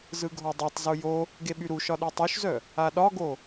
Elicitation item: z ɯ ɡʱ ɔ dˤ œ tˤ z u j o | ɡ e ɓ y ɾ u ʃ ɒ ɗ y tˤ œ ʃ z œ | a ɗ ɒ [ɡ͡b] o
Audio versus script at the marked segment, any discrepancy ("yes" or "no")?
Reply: yes